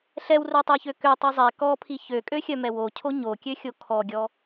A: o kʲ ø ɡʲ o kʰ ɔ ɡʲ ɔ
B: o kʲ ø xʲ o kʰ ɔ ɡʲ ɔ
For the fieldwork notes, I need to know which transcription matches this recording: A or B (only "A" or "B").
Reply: B